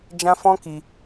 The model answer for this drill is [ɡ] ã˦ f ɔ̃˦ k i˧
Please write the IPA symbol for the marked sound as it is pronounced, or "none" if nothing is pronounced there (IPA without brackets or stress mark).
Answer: d͡ʒ